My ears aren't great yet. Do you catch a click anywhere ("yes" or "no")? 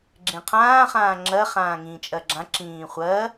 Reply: yes